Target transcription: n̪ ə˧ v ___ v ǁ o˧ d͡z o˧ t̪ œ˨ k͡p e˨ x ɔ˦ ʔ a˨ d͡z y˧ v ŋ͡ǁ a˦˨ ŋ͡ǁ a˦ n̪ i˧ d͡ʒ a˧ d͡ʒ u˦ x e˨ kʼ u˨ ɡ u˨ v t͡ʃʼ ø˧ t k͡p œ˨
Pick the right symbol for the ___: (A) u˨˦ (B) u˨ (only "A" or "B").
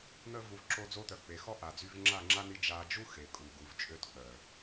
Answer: B